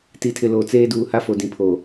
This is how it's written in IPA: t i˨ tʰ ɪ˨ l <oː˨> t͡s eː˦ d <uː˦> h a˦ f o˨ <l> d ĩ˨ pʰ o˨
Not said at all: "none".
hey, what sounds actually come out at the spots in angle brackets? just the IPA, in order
o˨, uː˨, none

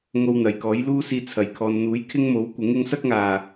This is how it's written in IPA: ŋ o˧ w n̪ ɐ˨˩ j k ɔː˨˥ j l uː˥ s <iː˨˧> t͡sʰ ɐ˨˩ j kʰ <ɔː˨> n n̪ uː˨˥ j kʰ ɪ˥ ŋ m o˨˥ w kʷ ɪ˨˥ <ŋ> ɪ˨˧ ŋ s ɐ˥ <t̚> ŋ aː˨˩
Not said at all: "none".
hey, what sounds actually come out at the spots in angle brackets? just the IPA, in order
iː˧, ɔː˨, ŋ, k̚

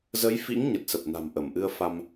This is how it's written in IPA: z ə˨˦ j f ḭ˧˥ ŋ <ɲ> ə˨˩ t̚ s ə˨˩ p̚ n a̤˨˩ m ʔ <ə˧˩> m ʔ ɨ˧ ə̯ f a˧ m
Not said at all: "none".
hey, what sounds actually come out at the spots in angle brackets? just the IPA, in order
ɲ, ə˧˩

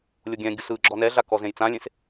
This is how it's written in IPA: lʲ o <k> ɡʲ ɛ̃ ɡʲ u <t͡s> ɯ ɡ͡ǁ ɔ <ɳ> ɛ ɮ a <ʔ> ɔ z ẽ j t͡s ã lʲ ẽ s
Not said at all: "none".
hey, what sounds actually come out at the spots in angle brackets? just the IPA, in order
none, s, n, k

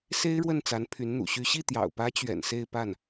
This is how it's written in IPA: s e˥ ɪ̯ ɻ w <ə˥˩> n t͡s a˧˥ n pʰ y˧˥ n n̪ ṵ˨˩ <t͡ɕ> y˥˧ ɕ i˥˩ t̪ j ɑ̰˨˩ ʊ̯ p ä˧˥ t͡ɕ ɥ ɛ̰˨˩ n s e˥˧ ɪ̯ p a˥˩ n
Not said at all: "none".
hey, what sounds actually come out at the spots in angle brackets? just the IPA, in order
ə˥˩, ɕ

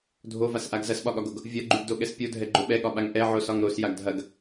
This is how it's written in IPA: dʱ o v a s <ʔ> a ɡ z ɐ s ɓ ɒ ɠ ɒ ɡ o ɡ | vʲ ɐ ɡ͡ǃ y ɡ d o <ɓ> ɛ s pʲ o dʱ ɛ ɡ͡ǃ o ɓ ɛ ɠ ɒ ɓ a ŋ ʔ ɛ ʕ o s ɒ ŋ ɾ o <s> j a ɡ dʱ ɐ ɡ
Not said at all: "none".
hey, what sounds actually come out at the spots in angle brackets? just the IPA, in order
ʔ, ɠ, s

